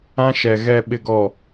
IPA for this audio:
ã˦ ʃ ɛ˨ ɣ ɛ˨ ɓ ɪ˨ ɡ ɔ˨

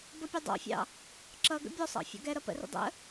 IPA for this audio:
b ʌ pʲ ʊ dˤ ɑ̰ fʲ ɑ̰ | ǁ ʌ ɡ ə̰ bʲ ɔ sˤ ɑ̰ fʲ ɔ̰ ɡ ɛ ɾ ʌ p ə̰ r ə̰ dˤ ə̰

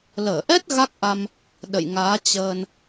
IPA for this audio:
l əː˧˩ ʔ ɛ˦˥ t̚ ɣ a˦˥ k̚ ʔ a˧ m | ɗ ə̰˧˨ j ŋ aː˨˦ t͡ɕ əː˧ n

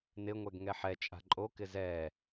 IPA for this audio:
n ɪ ŋʷ ɛ ɡ ŋ ɛ ħ ɛ t͡ʃʼ a̤ ǃʼ o k ɪ z ɛ

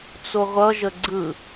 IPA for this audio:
t͡s o ʁʷ ʌ ʒ ə ɡ͡ǀ ɯ

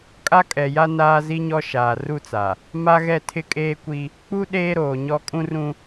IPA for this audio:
kʼ a˦ kʼ ɛ˨ j a˦ n aː˦ z i˦ ɲ ɔ˦ ʃ aː˨ r u˦ t͡s a˨ | m a˦ ɣ ɛ˦˨ tʰ ɪ˦ kʼ eː˦ kʷ i˦ | k͡p u˦ ɗ eː˦ ɾ oː˨ ɲ ɔ˦ kʼ ũ˦ r ũ˦

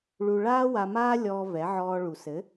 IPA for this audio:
ɭ u˧ ɭ aː˦ w a˧ m aː˦ lʲ ɔː˧ v ɛ˨˦ ʕ ɔː˧ ɭ u˨ s ɘ˨˦

